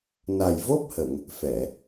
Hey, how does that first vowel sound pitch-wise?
low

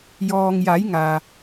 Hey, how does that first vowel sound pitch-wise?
low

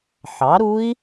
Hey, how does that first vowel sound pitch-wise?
rising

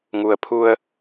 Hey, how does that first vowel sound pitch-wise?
low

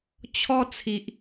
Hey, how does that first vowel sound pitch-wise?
high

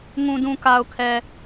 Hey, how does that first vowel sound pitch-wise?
low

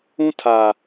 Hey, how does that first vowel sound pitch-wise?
high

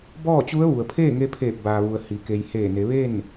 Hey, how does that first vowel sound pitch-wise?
falling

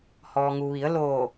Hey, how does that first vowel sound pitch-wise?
low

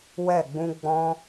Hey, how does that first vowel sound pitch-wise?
falling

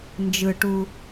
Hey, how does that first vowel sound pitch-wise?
low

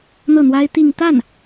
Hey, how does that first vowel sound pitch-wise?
falling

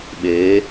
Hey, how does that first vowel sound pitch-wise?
rising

